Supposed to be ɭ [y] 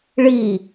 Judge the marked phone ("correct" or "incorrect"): incorrect